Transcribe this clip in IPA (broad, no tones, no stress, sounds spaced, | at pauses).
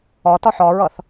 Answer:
ɒ t ɒ ħ ɒ ɹ ʌ θ